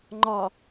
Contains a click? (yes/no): yes